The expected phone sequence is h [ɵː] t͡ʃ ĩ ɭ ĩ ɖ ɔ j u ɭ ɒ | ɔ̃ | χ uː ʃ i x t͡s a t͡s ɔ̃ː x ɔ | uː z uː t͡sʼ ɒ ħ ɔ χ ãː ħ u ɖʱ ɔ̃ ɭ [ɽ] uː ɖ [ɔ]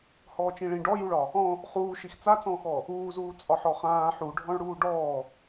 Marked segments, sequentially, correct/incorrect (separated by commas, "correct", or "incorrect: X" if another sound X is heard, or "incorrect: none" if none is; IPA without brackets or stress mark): incorrect: ɔː, correct, incorrect: ɔː